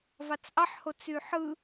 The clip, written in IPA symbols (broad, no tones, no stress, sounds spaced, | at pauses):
v ɑ t͡s ʔ ɑ ħ h o t͡s y ħ ɯ